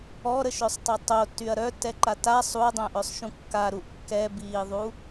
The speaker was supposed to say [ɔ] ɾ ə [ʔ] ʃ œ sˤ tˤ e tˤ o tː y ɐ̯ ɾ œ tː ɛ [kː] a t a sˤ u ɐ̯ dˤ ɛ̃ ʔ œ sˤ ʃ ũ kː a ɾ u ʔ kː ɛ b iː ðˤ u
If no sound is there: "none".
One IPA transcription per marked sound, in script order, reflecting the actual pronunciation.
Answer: ɔ, none, ǃ

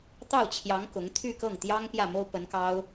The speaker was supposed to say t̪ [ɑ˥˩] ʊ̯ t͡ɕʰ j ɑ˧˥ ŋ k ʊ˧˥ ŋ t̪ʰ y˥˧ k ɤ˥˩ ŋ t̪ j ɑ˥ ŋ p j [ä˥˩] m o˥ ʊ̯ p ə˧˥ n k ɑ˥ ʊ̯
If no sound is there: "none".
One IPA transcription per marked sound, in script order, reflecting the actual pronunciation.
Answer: ɑ˥˩, ä˥˩

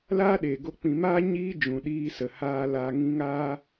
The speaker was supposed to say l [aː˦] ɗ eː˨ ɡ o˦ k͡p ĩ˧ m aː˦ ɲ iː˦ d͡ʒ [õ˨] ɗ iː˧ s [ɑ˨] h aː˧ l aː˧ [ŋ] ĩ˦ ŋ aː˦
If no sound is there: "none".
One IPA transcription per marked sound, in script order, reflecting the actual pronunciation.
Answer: aː˦, ũ˨, ə˨, ŋ

